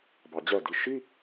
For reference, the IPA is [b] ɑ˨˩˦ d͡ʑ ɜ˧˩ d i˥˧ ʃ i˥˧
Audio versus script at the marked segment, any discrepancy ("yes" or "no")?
no